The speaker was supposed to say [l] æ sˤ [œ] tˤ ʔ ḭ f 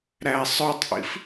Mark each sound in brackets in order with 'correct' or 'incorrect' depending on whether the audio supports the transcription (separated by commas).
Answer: incorrect, correct